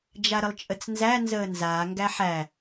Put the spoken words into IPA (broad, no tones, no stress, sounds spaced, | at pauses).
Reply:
d͡ʒ a ɾ ə lˠ t͡ʃʼ ə t͡s n z æ n z əː n z aː ŋ ɡ æ ħ æ